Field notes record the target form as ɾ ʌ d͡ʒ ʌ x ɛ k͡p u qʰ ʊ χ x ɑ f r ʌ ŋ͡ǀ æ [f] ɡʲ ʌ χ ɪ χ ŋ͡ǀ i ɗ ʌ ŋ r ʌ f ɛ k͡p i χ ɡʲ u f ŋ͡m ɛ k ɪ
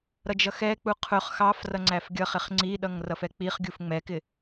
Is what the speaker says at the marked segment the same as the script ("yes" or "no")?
yes